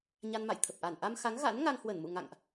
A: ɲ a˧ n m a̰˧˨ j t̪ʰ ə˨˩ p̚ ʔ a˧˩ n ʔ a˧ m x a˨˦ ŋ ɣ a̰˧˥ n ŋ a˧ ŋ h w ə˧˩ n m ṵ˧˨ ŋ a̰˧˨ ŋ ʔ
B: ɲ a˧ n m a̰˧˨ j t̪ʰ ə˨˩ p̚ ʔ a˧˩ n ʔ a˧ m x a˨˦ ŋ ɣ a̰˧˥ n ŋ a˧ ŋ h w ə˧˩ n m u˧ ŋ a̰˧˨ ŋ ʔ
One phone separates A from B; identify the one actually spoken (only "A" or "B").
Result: A